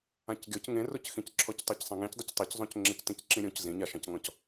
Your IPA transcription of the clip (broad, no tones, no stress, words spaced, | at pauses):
ãcɡʲɔc ŋẽrocxĩcǁʰɔc tˤacsˤãŋẽcdˤɪc tˤeczˤõc ŋ͡ǁectĩcǁĩɾʲõc zĩɲaʃãcŋɔ̃c